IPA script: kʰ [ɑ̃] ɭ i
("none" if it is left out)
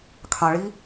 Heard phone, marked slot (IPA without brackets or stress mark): ɑ̃